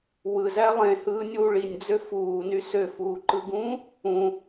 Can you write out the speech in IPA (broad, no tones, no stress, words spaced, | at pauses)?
wɯzæ lˠẽhɯːnʲuː ɭinʲd͡zø fuːny søfuːǃɯɡũː | ũ